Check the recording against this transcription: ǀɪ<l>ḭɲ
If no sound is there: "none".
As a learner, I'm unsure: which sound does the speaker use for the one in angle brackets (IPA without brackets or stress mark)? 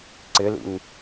l